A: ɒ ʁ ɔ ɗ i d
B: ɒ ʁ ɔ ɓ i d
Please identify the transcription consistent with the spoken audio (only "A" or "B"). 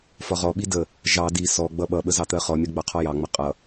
B